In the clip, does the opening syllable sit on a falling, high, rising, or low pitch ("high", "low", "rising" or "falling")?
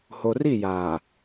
low